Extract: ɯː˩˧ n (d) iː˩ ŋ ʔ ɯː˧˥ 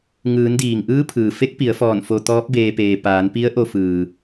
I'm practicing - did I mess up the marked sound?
no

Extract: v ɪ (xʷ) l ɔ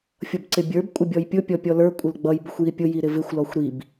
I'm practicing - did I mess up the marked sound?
no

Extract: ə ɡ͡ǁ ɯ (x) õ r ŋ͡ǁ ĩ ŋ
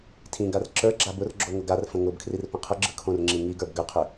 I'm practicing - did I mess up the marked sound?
yes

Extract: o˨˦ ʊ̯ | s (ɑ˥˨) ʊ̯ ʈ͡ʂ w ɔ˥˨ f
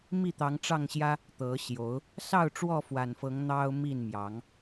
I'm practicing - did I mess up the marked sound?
no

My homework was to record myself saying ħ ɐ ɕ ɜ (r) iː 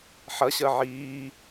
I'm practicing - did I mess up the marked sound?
yes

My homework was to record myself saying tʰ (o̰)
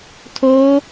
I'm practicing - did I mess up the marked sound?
yes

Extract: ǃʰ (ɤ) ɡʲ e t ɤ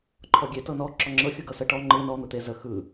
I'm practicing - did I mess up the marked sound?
yes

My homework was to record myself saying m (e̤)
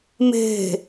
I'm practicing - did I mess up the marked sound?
no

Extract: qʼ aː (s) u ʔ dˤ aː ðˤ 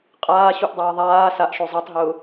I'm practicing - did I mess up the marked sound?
yes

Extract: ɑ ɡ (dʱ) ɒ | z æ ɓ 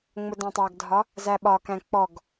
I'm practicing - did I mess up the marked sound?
no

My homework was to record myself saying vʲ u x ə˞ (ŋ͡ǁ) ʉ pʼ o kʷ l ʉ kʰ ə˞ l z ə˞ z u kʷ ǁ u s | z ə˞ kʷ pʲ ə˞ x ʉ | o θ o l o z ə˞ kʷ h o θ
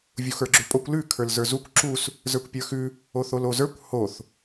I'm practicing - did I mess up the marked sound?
yes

